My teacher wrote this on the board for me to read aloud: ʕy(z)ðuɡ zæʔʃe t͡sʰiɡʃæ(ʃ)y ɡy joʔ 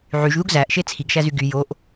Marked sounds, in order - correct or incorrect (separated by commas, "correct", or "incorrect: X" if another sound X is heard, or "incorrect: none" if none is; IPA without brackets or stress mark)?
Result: incorrect: ʒ, incorrect: z